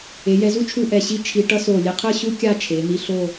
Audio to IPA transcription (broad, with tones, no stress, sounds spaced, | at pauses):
e˩˧ j ɛ˧ z u˥ t͡ʃʰ u˥˧ ʔ ɛ˧˩ ɕ i˥ t͡ʃʰ i˧ ʈ ʌ˥ s o˧˩ lʲ e˧ qʰ ɯ˥˧ ɕ u˥ kʲ a˥˧ t͡ʃʰ e˩˧ n̪ i˧ ɬ o˥˧